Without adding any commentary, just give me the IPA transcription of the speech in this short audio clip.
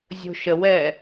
zʲ o̤ ʃ ə w ɛː

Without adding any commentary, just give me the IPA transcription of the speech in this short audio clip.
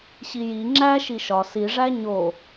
ɕ i j i ŋ͡ǁ æ ʃ i ʃ ɒ s i ʐ æ ɲ o

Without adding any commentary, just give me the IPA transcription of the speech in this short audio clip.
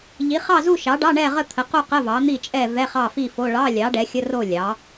ʎ i˩˥ χ ɑ˥˨ z u˥˨ ʃ ɑ˩˥ ɖ ɑ˧˥˧ ɳ ɛ˥˨ ʁ ə˥˨ t̪ʰ ə˩˥ q u˥˨ q ə˧˥˧ v ɑ˩˥ n̪ i˥˨ t͡ʃʼ ɛ˥˨ v ɛ˧˥˧ χ ɑ˥˨ f i˥˨ f o˧˥˧ ɭ ɑ˧˥˧ lʲ ɑ˩˥ ɖ ɛ˩˥ xʲ ə˧˥˧ r o˥˨ lʲ ɑ˩˥

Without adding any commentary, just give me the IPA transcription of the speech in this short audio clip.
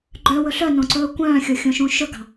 ɡ͡ǃ œ w ɵ ɬ œ n õ ǀ ɵː kʷ œ̃ː xʲ o xʲ õ ʃ ũ ʃ ɵ ɡ ɑ̤

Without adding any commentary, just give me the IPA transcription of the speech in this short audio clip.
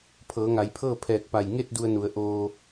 pʰ ɤː˩˧ ŋ a˩˧ j pʰ ɤː˥˨ pʰ ɛː˧˩ k̚ p a˧˩ j ŋ e˥˨ t̚ d u˧ ə̯ n u˩˧ ə̯ ʔ oː˧

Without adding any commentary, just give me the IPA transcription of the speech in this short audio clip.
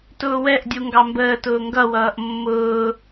t ʊː w ɛ ʔ dʲ u ŋ ɡ ɑ m b əː t ʊː ŋ ɡ ʌ w ʌː ʔ mː ʊː

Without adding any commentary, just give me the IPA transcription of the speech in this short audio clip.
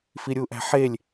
f i ɾʲ u ʔ æ̤ ħ e lʲ

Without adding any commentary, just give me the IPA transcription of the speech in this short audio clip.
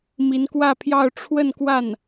m i˧˥ n k w ä˥˧ pʰ j ɑ˥˧ ʊ̯ ʈ͡ʂʰ w ə˥˧ n k w a˥˩ n

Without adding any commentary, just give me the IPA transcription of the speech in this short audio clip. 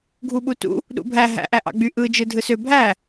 ɡʱ u ɓ u t ṵ | ɗ ṵ bʱ æ ɦ æ̰ ʔ æ ʔ ɑ̰ ɡ͡b y ʔ ɯ d͡ʒ ɯ dʱ ɯ s ø bʱ æ

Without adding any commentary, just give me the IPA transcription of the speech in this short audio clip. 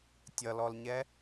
tʲ ʌ l ɔ l ɲ ɛ

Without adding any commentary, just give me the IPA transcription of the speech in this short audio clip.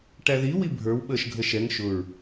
ʈ æ ð i w i bʱ ə˞ w ɓ əː ʃ ɡʱ ə ʃ ɛ ŋ ʃ ʊ ɹ

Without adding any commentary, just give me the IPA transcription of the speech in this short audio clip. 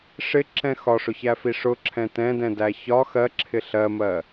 ʂ ɪ ǁ ɛ̃ x ɒ ʂ ʊ ç æ f i ʂ ʊ ǁʰ ɛ̃ t ɛ̃ d ɛ̃ d æ ç ɒ x ɜ ǁʰ ɪ ɬ ɜ m ɜ

